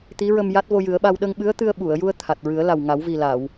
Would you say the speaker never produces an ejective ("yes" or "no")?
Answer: yes